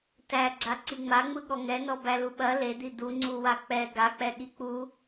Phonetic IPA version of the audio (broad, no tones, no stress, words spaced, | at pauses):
tæɡ͡ǀa ǀiŋ͡maŋ͡mɯ ɠɔŋɛnɔ bæluɓɐ led̪i d̪u ŋ͡ǀuwak͡pɛ ɡak͡pɛɠi k͡pu